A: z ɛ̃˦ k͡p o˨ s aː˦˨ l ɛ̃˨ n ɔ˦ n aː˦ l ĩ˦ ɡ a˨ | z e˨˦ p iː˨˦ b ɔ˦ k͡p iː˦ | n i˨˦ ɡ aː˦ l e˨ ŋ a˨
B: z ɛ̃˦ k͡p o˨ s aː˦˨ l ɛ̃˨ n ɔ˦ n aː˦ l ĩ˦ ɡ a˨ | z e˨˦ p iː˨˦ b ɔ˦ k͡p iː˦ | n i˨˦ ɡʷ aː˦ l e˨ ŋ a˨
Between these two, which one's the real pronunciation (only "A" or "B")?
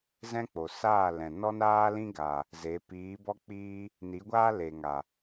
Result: B